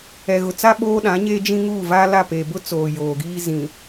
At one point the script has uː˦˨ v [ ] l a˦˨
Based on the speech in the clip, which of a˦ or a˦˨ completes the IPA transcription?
a˦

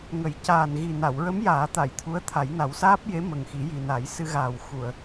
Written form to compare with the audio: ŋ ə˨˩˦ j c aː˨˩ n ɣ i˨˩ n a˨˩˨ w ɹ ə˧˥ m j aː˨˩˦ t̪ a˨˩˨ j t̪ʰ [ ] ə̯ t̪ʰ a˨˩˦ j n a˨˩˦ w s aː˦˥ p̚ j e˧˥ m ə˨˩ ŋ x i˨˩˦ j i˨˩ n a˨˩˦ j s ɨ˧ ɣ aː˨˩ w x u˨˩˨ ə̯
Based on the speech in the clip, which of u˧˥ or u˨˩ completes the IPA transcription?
u˧˥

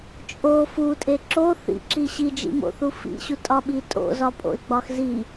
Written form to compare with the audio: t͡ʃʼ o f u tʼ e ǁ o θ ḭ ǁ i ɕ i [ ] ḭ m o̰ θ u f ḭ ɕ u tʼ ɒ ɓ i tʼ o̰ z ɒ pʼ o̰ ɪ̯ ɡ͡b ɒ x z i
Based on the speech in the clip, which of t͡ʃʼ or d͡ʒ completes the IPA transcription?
d͡ʒ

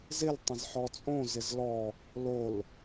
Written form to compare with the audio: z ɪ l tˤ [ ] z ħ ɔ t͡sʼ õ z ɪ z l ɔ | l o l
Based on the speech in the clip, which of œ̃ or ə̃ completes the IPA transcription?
ə̃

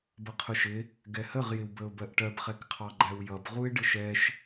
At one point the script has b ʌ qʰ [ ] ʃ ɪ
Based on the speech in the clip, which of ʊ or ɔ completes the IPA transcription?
ʊ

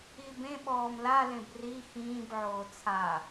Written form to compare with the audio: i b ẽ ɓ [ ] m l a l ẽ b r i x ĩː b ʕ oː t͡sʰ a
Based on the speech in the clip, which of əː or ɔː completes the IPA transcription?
ɔː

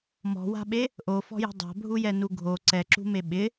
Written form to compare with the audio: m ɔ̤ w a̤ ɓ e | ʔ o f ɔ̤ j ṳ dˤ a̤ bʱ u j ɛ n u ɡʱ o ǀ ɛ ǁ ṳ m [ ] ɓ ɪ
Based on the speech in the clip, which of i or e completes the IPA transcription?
e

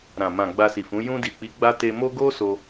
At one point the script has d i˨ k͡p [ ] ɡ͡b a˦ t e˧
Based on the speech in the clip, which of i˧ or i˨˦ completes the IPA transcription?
i˨˦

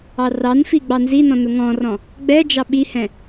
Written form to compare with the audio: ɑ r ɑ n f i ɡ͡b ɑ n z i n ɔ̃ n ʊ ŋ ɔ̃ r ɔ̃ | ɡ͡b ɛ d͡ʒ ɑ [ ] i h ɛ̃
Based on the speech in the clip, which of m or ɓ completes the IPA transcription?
ɓ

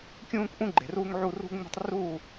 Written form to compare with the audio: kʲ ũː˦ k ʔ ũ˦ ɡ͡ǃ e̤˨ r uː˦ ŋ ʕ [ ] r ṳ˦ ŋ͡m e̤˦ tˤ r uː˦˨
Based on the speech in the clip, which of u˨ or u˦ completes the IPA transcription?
u˦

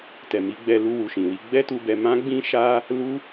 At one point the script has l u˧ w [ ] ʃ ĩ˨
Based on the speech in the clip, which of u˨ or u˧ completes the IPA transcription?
u˨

